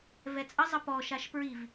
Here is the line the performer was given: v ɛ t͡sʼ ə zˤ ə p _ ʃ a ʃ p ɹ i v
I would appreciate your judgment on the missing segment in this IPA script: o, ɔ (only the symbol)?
ɔ